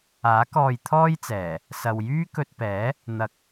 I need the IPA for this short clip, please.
aː˨˥ k ɔː˧ j t̪ʰ ɔː˥ j t͡s ɛː˨˩ | s ɐ˨ w j yː˥ k ɵ˧ t̚ p ɛː˨˥ | n̪ ɐ˨ k̚

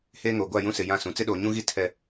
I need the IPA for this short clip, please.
h eː˦ ŋ oː˨ ɡʷ a˦˨ j ũ˦ s ɪ˨ j ã˦˨ s ũ˨ t͡s ɪ˦ ɗ oː˨ ɲ ũ˦ ɣ i˦ tʰ ɛ˦

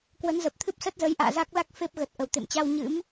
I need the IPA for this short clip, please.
k w ə˨˦ n z ə˨˩ p̚ t̪ʰ ɨ˦˥ p̚ s ə˦˥ t̚ z ə˨˦ j ʔ a̰ː˧˨ z a˦˥ k̚ l a˦˥ k̚ f e˦˥ p̚ ɣ ə˨˩ t̚ ʔ ə˨˩ w t̪ ḛ˧˨ m t͡ɕ a˧ w ɲ ɨ̰˧˥ m

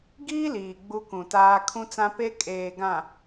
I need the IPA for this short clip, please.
ɡ iː˦ l iː˨ ɡ͡b u˦ k ũ˨ t aː˦ kʰ ũ˦ t͡s ã˦ p e˦ kʼ eː˨ ɡ ã˨

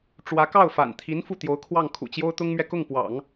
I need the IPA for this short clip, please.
ʈ͡ʂ w ä˧˥ k ɑ˥˩ ʊ̯ f a̰˨˩ n t̪ʰ i˧˥ n f u˥˩ t̪ j o˧˥ ʊ̯ kʰ w ɑ˥˩ ŋ kʰ ṵ˨˩ t͡ɕ j o˥ ʊ̯ t̪ ʊ˥ ŋ m ɥ ɛ˨ k ʊ˥˩ ŋ p w ɑ̰˨˩˦ ŋ

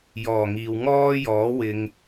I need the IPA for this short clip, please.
j ɔː˨˩ ŋ iː˨ w ŋ ɔː˥ j ɔː˨˥ w ɪ˧ ŋ

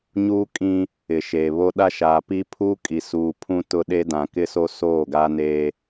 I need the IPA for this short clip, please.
ɲ uː˦ kʼ ĩ˦ | ɪ˨ ʃ e˨ β o˦ ɗ a˦ ʃ aː˨ p i˦ pʰ uː˦ kʼ i˨ s uː˨ pʰ ũ˦ t ʊ˦ ɗ e˦ d ã˨ k ɪ˦ s o˦ s oː˦˨ ɡ a˦ n eː˦

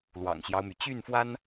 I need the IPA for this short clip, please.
l w ɑ̰˨˩ ŋ ɕ j ɑ˦ ʊ̯ m y˩ t͡ɕ y˥˩ n f w a˥ n

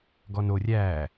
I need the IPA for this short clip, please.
ɡ ɔ n o rʲ æ

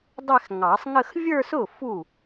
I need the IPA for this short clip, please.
dˤ ɛ˥˧ x ŋ ɑ˨˩˦ sˤ ŋ ə˥˧ x vʲ ə˞˥˧ s ʊ˥˩ f u˥˩

